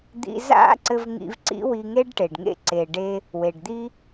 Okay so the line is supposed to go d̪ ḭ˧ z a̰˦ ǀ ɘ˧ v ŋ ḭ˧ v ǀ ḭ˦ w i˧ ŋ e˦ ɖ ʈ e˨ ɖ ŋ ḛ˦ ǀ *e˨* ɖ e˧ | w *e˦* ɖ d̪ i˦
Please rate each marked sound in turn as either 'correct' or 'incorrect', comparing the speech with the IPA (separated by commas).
correct, incorrect